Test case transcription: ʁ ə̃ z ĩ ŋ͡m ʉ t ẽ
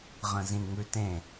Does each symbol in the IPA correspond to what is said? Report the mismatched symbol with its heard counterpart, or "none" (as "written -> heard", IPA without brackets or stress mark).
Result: none